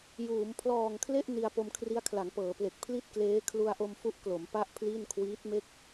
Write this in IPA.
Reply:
j uː˩˦ m pʰ l ɔː˨˩ ŋ kʰ l e˥˩ ʔ n i˧ a̯ p o˧ m kʰ r i˦˥ a̯ kʰ l a˩˦ ŋ p ɤː˩˦ p l e˨˩ k̚ pʰ l i˥˩ t̚ k l eː˦˥ kʰ l u˧ a̯ ʔ o˧ m f u˦˥ ʔ k l o˩˦ m p a˥˩ ʔ pʰ l i˥˩ n kʰ w iː˦˥ t̚ m e˥˩ k̚

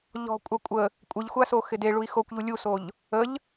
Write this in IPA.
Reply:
ʎ ɔ̤ kʷʼ a kʷʼ ə | kʷʼ ɪ ʎ xʷ a s o x ɪ d e ɭ u i̯ x o kʷ ʎ u lʲ u s o ʎ | ə ʎ

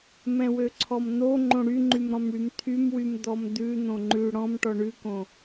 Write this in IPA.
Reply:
m ɛ̃ w ø ǀʰ ɔ m n̪ o ŋ͡ǃ õ ɽ y ŋ͡ǃ y m ɾ ɔ̃ m ɽ y m t̪ʰ y m w y m d̪ ɔ m d̪ ʉ n̪ õ ŋ͡ǃ ʉ ɽ ɔ̃ m ʈ ɔ ɳ ʉ k õ

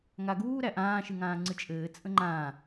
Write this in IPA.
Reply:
ŋ a ɡ uː ɾ æ ʔ ãː ʃ ɨ ŋ ãː ŋ͡ǀ ɨ t͡ʃʼ ɘː t͡sʼ ə̃ ŋ͡ǃ ãː

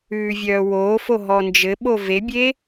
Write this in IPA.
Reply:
ʉː vʲ œː w oː f o ɦ ɔ n d͡ʒ ɘ ɓ o v e bʲ e

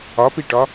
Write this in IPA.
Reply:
ɒ p i ʈ ɒ

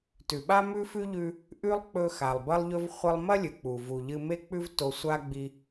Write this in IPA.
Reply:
t ʉ˩ ɓ a˥ m ʉ˥ f ʉ˥ ʎ ʉ˧ | ʔ ʉ˥ lˠ k͡p ɵ˧ x a˩ lˠ b ɐ˥ lˠ ʎ ɵ˥ v χʷ ɐ˥ lˠ m ɐ˥ lʲ ɨ˩ k͡p u˩ v u˩ ʎ ɨ˧ m e˥ k͡p ʉ˥ v t o˧ sʷ a˥ ɡ͡b i˧

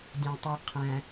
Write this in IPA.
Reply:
dʲ æ̃ tˤ u qʰ æ̃

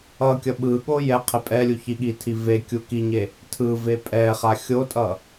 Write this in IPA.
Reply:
ʌ kʲ ʌ ɓ ɯ ɠ o j ɛ qʰ e pʼ ɛ lʲ u ç i ɠ i tʰ i v e kʲ u k i ɲ e | tʰ ɯ v e pʼ ɛ χ a xʲ o tʼ ʌ

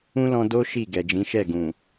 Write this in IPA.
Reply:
ũ˦ l ɔ̃˧ d o˦ ʃ i˦˨ ɡ ɛ˨ d͡ʒ ĩ˨˦ ʃ ɛ˦˨ ɡ ũ˨

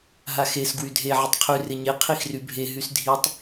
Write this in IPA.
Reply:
ɦ a x e s ɡ w y dʱ e ʕ ɪ tˤ qʰ y r ɪ ɲ e qʰ i x r y bʱ e ɦ y s dʱ i tˤ

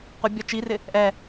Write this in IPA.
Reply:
qʷ ɪ bʲ ɔ t͡ʃ i r ɪ | ʔ ɛ

